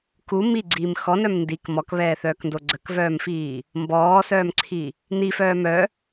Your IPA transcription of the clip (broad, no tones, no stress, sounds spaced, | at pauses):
k u m i ɡ͡ǀ iː m x ɔ n œ m n d i k m ɔ k β ɛː θ œː k n d o ɡ͡ǀ ə k v œː m f iː | m b ɔː s œː m ǀʰ i | n i f œː m œ